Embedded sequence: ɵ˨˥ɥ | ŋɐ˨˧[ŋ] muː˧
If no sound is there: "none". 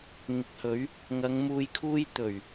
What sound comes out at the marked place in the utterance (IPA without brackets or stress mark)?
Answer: ŋ